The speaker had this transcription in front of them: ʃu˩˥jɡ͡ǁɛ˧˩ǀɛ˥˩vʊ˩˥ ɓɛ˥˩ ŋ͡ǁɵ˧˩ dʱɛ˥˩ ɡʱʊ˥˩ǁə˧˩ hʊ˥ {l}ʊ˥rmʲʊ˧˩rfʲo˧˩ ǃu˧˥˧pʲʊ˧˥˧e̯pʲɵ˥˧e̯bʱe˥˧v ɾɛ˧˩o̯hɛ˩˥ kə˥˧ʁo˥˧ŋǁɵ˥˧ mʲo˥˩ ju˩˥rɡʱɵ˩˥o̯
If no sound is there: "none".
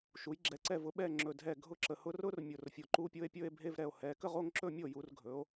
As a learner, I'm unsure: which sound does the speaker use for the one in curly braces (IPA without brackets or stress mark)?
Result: r